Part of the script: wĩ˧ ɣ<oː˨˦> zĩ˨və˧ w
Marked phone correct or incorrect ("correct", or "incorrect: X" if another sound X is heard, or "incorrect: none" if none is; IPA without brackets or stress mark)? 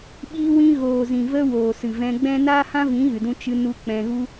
incorrect: oː˨